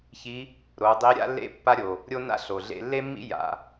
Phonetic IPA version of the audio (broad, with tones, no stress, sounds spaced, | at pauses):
ç i˧˥ | ɾ o˩˧ dˤ i˧˥ ɾʲ a̰˥ lː ḛ˥ pː a˥ ɾʲ o˩ | ɾʲ o˥ n a̰˥ ɬ o˩ ɮ ḛ˧ lː e˥ mː ḭ˥ j a̰˩˧